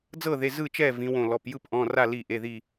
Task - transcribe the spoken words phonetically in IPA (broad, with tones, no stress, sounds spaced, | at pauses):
d͡z ɤ˥˨ ð e˩˧˩ z ɯ˥˨ t͡ʃ ɛː˥˨ v ĩ˩˧ w õ˧˩ l ɔ˩˧˩ p j ɯ˥˨ p ʔ ɔ̃˩˧˩ r a˥˨ l i˧˩ ʔ e˩˧˩ ð i˧˩